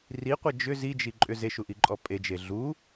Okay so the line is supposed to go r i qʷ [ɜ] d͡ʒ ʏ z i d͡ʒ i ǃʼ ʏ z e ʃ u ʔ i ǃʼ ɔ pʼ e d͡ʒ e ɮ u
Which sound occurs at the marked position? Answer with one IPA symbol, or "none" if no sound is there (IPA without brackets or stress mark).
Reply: ɜ